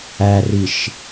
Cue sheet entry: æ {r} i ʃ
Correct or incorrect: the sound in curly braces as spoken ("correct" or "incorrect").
correct